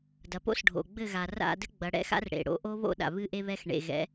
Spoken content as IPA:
d ɐ˨ p o̰˦ s ɖʱ o̰˨ ɡ͡b ɘ˦˨ ɣ a˨ r a̰˦˨ d ɘ˦ ɡ͡b ɐ˨˦ ɽ ɛ̰˦ x a̰˦ r ɽ ḛ˨ ɽ o̰˦ ʔ o˦ β o̰˦ ɗ a̰˨ β ɨ˦ ʔ e˦ β ɛ˦ x ɳ ḛ˨ ɣ ɛ̰˨˦

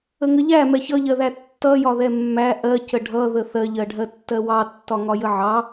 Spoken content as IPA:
ə ŋ ə ʎ æ m ɛ ç ʌ ʎ ɜ ð æ tː ʌ j ɒ ð ɛ mː æ ʔ ɜ c ə ɖʱ ʌ ð ə θ ɜ ʎ ɜ ɖʱ ɜ tː ɜ w ɑ tː ɒ ŋ ɒ j ə ʕ ɑ

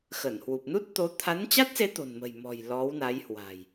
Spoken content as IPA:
x ə˧˩ n h w u˨˩ p̚ n u˦˥ t̚ t̪ o˨˦ t̪ʰ a˨˦ n t͡ɕ a˦˥ t̚ s e˨˦ t̪ o̤˨˩ n m ə̤˨˩ j m ɔ̤˨˩ j l ɔ˨˦ w n a˨˦ j h w a̤˨˩ j

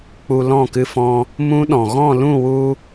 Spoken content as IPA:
k͡p u˧ l ɔ̃˦˨ k ɨ˧ f ɔ̃˧ | m ũ˦ ɗ ɔ̃˨ ɣ ɔ̃˦˨ l ũ˦˨ w u˧

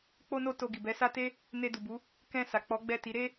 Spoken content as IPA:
k͡p o˧ n o˧ t o˧ ɡ i˨ b ɛ˨˦ s a˦ t e˦ | n e˧ d u˨ b u˨˦ | k ɛ̃˧ s a˨ k͡p ɔ˨˦ ɡ͡b ɛ˦˨ t i˨˦ ɾ e˦

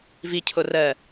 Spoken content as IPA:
v i cʰ o r ɜ

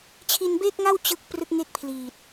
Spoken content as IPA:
t͡ɕʰ i˧ n b eː˥˩ k̚ ŋ a˥˩ w t͡ɕ ɯ˥˩ k̚ p r ɯ˥˩ k̚ ŋ e˥˩ k̚ pʰ l iː˨˩ t̚

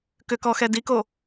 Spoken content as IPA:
k ʏ k ɔ x ɛ d i k o

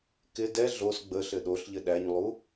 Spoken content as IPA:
k ɪ d ɛ ɮ o s ɡ͡b ə ɬ ɘ ɗ o ɬ ʎ ɘ ɗ æ ɲ lˠ u

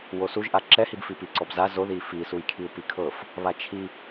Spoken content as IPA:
w o s u ʒ ʔ a ǁ ɛ h i b f i p i ǀ ɔ b z a z o ð i f i s u j kʰ i u̯ p i kʰ ɤ f | β a t͡ʃʰ i

